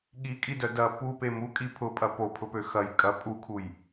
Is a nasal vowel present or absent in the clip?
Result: absent